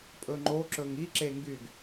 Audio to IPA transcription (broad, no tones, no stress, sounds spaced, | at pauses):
pʼ ɵ ŋ͡ǃ o ǁ ɵ ŋ i ǁ e ŋ ɡ y ɡ